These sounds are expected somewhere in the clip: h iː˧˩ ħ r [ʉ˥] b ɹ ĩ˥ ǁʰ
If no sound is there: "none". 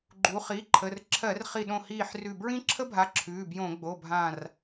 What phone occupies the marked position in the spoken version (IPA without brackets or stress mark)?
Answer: ʉ˧˩